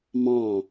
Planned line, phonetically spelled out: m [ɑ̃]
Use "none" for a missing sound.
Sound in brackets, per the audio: ɑ̃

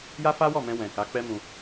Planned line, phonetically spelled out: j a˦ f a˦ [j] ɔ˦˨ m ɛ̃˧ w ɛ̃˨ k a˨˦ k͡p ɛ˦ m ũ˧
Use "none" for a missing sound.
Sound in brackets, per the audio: w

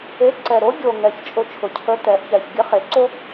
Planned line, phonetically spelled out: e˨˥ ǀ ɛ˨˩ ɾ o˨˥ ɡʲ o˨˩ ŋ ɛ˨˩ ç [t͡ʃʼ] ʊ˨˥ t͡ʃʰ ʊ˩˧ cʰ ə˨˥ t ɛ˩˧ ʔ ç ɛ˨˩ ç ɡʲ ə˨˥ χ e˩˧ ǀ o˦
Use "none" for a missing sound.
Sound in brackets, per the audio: t͡ʃʼ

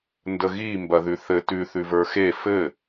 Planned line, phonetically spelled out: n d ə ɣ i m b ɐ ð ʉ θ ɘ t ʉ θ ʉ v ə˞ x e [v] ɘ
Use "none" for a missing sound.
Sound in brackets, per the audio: f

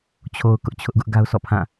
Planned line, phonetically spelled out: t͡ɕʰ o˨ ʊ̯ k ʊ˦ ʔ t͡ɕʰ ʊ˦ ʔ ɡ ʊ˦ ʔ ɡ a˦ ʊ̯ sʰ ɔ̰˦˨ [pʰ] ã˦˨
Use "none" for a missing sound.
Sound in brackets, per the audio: pʰ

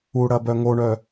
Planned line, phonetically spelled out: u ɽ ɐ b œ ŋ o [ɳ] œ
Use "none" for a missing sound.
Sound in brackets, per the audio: ɳ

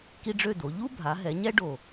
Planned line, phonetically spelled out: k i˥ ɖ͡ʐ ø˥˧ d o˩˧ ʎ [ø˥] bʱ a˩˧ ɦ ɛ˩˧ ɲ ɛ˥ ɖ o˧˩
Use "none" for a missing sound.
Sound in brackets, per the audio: u˥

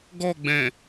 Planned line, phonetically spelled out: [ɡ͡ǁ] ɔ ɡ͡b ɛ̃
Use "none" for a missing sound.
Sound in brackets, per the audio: ɡ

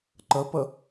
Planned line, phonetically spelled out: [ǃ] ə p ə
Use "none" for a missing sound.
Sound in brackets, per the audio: ǃ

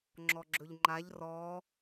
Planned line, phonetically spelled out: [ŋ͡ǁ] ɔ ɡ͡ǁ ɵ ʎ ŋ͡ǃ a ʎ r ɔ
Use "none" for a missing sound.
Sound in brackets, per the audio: ŋ͡ǁ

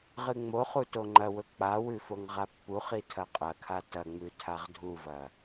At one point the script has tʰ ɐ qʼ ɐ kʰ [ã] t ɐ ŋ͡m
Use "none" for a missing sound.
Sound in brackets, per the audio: a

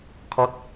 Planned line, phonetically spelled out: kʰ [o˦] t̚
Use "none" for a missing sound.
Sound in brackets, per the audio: ɔ˦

